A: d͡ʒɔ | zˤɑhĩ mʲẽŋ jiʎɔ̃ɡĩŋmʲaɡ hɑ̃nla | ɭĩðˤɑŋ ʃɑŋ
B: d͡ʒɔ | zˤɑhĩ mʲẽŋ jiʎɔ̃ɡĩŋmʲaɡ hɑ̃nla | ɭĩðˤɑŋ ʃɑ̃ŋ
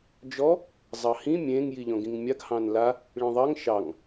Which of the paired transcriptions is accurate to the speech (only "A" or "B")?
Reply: A